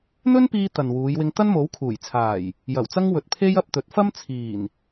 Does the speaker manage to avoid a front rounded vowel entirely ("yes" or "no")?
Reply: yes